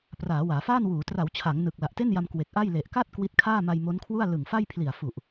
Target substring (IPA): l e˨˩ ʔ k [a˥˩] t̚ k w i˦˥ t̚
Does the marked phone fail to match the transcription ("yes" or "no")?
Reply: no